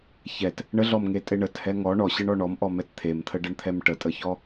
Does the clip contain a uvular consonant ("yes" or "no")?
no